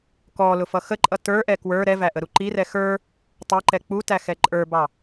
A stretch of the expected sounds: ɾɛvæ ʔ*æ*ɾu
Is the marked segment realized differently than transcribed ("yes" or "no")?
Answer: yes